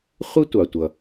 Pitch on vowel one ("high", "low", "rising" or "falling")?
high